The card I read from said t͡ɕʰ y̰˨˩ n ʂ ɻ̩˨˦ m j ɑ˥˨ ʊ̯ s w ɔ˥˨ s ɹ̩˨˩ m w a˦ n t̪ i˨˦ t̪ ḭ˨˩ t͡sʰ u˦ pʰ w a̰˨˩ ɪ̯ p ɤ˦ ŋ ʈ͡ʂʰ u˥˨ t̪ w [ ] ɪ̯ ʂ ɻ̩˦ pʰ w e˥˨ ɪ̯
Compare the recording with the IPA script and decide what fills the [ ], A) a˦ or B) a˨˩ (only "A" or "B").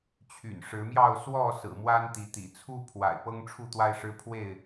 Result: A